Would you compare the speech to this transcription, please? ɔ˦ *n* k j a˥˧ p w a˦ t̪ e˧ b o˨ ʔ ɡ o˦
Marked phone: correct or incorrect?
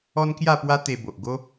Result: correct